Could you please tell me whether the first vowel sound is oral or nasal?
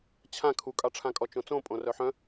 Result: nasal